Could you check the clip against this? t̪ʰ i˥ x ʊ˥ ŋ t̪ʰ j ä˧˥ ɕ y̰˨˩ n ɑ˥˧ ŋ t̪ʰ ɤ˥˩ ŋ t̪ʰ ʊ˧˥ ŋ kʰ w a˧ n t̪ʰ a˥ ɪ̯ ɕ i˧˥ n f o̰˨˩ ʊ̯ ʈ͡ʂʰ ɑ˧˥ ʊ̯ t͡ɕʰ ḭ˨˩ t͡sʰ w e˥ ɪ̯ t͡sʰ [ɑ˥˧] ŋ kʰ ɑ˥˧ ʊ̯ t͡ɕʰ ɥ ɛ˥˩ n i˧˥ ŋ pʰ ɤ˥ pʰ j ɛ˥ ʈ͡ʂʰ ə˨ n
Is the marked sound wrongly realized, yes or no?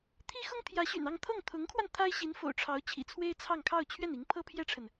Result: no